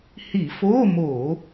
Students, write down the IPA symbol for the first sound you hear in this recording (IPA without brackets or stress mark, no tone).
h